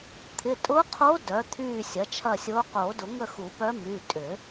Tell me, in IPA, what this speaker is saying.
t̪ʰ ɪ˩˧˩ tʼ ʊ˧˥ qʰ o˧˥ d œ˩˥ t̪ʰ yː˦˨ sʲ ɐ˩˥ t͡ʃʰ ɐ˦˨ sʲ oː˧˥ q oː˨˩˦ d ʊ˨˩˦ ŋ ə˦˨ x u˨˩˦ p œ˧˥ m y˩˧˩ tʼ ʏː˨˩˦

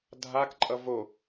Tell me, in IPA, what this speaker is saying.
dʱ a k ǃʼ ʌ v o

